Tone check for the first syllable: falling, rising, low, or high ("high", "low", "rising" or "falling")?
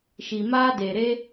low